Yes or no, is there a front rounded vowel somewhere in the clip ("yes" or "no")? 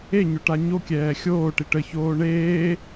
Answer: no